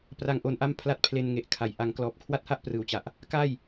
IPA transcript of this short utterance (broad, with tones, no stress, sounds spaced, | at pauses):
p r a˦˥ ŋ ʔ o˧ n ʔ a˥˩ m pʰ l a˥˩ t̚ pʰ l e˧ n ŋ e˨˩ ʔ kʰ a˩˦ j ʔ a˩˦ ŋ k l ɔː˨˩ p̚ kʰ w a˥˩ t̚ h a˥˩ ʔ p r ɯː˨˩ w t͡ɕ a˨˩ ʔ | k a˥˩ j